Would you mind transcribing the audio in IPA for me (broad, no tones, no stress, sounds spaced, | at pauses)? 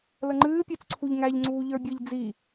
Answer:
l ə ŋ͡ǃ ɨː pʲ e t͡s ǀʰ u ʎ ŋ æ ʎ ŋ͡ǀ uː ʎ ə˞ bʲ ɨ ʎ d͡z i